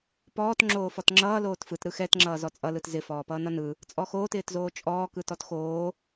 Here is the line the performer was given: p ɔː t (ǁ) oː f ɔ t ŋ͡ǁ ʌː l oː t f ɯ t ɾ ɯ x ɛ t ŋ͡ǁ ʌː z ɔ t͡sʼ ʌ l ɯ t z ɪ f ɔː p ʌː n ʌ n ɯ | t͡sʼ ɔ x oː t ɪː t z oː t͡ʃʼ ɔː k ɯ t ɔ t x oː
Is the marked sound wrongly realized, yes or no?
yes